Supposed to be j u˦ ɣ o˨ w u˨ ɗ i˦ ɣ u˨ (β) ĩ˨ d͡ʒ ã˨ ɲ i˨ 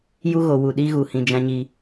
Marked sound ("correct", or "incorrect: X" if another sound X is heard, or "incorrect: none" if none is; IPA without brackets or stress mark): incorrect: h